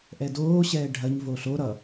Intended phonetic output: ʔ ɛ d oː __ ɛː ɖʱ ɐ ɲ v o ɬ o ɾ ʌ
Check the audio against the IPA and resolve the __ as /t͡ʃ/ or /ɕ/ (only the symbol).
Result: ɕ